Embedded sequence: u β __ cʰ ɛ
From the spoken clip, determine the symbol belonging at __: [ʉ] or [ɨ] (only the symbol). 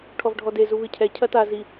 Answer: ɨ